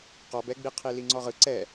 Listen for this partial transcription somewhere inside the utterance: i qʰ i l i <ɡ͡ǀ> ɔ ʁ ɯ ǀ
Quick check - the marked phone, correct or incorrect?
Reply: incorrect